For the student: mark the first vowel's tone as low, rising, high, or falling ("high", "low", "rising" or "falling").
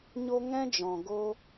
high